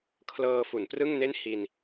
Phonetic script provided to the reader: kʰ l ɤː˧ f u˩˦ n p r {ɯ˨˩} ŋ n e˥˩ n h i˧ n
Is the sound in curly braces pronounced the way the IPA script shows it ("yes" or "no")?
no